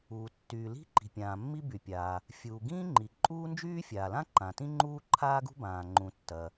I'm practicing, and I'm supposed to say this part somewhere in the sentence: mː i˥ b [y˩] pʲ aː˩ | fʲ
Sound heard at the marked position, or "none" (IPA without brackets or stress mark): y˩